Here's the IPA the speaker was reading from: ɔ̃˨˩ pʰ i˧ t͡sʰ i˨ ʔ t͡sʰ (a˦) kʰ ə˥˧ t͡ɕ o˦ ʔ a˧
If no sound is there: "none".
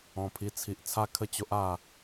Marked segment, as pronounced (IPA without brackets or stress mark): a˥˧